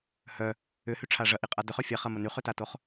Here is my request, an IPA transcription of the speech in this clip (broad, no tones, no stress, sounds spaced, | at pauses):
h œ | ʏ h y ʈ͡ʂʰ a ʐ ɐ ʔ i qʼ a d ʏ χ ø fʲ a χ ɐ m ə n y χ ʏ t a t o χ